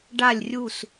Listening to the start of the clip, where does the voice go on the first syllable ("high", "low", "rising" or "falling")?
falling